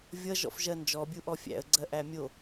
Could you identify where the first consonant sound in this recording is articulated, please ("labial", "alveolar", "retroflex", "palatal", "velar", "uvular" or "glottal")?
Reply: labial